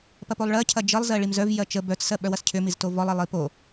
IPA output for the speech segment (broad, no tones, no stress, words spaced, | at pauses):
pɐpolˠɭɜ cʰɐd͡ʒəlˠ zɜɭimzœv jɜt͡ʃə bœt͡s sɜɓœwɐscʰʏ miztovɔlˠ əlˠipo